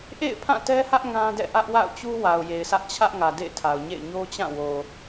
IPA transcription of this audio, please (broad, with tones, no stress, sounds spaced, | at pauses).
ʔ ḛ˦˨ ɪ̯ pʰ ã˦˨ t ɛ˦ h ä˦ ʔ ŋ ã˦ d ɛ̰˦˨ ʔ ä˦ ʔ w a̰˦˨ ʊ̯ t͡ɕ u˦ w a˨ ʊ̯ j e˨ ɪ̯ sʰ ä˦ ʔ t͡ɕʰ ä˦ ʔ ŋ ä˨ d ḛ˦˨ ɪ̯ tʰ a˨ ʊ̯ ɲ ḛ˦˨ ɪ̯ ɲ o˦ t͡ɕ ã˦˨ w o˨